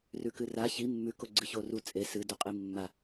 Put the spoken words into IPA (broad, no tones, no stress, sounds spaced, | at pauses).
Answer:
r ʉ k ɨ r a ç i mː ʉ k o ɡ͡ǀ ɨ ç o r u t͡sʼ e s ɨ d u qʼ i mː a